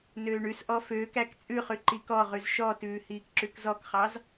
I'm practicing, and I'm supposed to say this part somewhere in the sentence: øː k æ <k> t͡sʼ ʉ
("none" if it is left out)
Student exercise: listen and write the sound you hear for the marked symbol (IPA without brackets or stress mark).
k